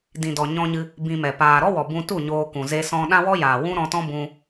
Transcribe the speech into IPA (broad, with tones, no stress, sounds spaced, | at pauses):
d ĩ˨ d ɔ˨ ɲ ɔ̃˧ ɲ ɨ˧ | b ĩ˧ m ɛ˨ p aː˨ ɾ ɔ˦ w ɔ˨ b ũ˧ t u˦˨ ɲ oː˧ k ũ˨ z e˧ s ɔ̃˧ ɗ ã˦ w ɔ˦ j aː˨ w ũ˦ ɾ ɔ̃˧ t ɔ̃˦ b ũ˧